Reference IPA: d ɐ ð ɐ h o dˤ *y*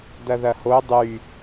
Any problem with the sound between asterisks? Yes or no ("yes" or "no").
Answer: no